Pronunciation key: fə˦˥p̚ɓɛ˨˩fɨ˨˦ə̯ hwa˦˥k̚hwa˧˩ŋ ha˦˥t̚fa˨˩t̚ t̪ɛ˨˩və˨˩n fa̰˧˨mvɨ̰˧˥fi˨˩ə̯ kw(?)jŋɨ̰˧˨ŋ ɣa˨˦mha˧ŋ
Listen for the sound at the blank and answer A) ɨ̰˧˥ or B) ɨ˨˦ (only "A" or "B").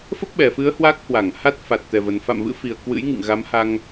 A